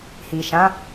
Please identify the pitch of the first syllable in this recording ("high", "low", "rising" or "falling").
low